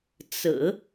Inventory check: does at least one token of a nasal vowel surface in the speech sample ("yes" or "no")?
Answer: no